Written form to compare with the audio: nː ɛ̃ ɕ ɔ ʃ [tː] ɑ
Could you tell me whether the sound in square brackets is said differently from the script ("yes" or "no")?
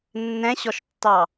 no